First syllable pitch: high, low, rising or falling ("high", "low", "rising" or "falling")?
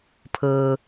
low